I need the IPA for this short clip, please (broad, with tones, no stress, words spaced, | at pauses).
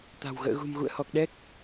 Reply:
t̪a̤˨˩w ɣə̰ː˧˨ɣṳ˨˩m ɣṵ˧˨ə̯hɔ˨˩k̚ɗɛ˦˥k̚